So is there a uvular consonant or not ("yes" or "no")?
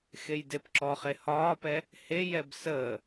yes